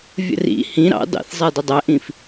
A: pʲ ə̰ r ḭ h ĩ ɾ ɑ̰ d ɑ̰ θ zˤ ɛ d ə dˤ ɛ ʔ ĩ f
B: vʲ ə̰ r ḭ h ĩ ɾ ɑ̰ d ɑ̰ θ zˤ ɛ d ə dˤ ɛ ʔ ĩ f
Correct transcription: B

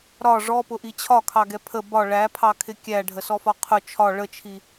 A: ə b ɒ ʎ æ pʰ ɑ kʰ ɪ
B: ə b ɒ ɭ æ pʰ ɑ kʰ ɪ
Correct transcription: B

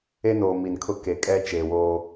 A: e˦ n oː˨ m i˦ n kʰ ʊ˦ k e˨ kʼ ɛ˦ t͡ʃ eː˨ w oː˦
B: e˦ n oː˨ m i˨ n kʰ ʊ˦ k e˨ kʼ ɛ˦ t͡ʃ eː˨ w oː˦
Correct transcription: B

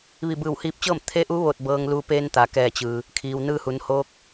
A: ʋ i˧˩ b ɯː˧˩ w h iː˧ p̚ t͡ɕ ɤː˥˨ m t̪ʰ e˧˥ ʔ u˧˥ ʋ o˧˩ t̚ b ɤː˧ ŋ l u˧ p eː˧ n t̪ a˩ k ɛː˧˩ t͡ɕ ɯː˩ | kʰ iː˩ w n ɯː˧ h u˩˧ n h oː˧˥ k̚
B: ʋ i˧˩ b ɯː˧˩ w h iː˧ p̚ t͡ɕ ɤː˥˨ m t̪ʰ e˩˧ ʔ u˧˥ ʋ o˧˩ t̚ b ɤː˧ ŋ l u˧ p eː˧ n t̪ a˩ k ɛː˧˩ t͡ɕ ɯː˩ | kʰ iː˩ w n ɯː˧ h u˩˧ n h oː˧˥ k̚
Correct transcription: A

